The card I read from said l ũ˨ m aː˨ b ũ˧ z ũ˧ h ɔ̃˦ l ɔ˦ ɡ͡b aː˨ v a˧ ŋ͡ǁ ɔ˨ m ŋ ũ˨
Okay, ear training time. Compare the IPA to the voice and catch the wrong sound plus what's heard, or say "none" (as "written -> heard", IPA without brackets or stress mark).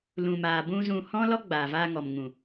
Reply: ŋ͡ǁ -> ŋ